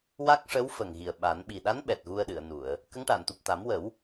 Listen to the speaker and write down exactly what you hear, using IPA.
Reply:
wa˦˥k̚ʂə˧˥wfə˨˩ŋ ɣi˨˩ə̯ɓa˨˩˦n ɓi˨˩ɗa˧˥n ɓɛ˨˩t̚ɣu˧ə̯ɗɨ˨˩˨ə̯nu˨˩˨ə̯ | kə˧˥ŋʈa˨˩˨n t̪u˨˩p̚t̪a˨˩˦mwə˨˩˦w

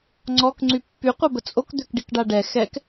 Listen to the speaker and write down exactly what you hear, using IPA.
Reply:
ŋ͡ǀɔk ŋ͡ǀypːy qʷœbət͡sʼok d̪økɖikɖaɖɛ xɛk

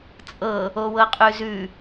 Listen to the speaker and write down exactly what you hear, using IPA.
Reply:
t͡sʼɤ | owɤqʼʉzʉ

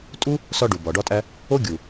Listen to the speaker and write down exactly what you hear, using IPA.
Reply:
tʼu˦ | sɒ˧ ɖu˨bɒ˨ɖɒ˦tʼæ˦ | o˦ɡʲu˨

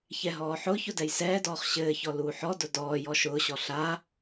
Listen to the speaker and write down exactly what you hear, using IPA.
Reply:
çɛɦɔːħʊːçʊ dɛjsɛːdɔːχ ɕɘːçɔ luːħɔdʊ dɔː jɔʃʊːɕɔ ɬa

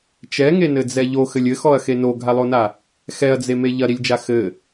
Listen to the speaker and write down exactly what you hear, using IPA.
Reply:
t͡ʃɛŋenɘd͡zɛ ʎoxɘlʲ ɘxɔɐ̯xe noɡʱalˠona | xɛɐ̯d͡zeme ʎɐɾilʲd͡ʒa xɘ

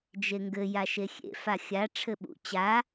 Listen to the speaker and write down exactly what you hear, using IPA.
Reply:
d͡ʒeŋɡɘ jaʃexʲḛ faxʲa ʈ͡ʂʰɘɓṵ t͡ɕa

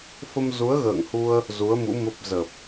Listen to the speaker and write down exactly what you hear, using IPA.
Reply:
fə˧mzu˨˦ə̯ɣə̰ː˧˨ŋhu˧ə̯ | zu˨˦ə̯mṵ˧˥ mə˦˥p̚ zə˨˩p̚

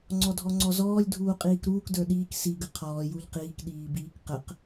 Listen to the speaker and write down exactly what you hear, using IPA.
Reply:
ŋ͡ǀɔdʱɔŋ͡ǀɔzɔːlʲ dʱuːqʼiːkɾuːk də˞ɗiːk si ɡəqʰɔː juʎqiːk ɗiːbiːkqəq

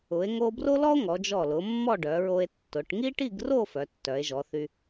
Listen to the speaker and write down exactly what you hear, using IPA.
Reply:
ʊ˩˧e̯ ŋo˧bro˥lɔ˥o̯ ŋɔ˩˧d͡ʒɔ˧˩lʊ˩˧mːɔ˥˧ ɖœ˩˧ɹo˧e̯tːʊ˩˧ʈ ŋi˥ʈi˥˧ɡro˥˧ fœ˩˧tːœ˩˧e̯ʒɔ˩˧θy˧

